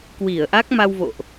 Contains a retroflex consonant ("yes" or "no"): no